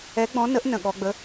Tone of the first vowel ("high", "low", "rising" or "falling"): rising